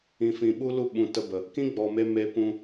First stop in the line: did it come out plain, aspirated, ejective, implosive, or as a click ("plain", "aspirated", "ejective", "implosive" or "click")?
implosive